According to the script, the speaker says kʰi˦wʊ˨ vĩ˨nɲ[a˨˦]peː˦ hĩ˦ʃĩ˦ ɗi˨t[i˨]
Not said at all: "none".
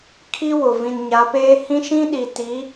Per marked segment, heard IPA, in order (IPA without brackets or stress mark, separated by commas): a˨˦, i˨˦